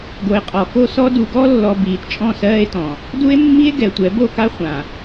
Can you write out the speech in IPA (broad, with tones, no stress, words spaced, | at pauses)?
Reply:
ɡo˨e̯qʼɔ˨ko˦sɔ˦ du˨ɡɔ˦lːɔ˨ biː˨tt͡ʃʼɔ̃˦˨sɜː˦e̯tɔ̃˨ | du˦e̯mːi˦e̯ ɡɛ˨tʷɛ˨˦ bo˦˨ka˦χʷã˨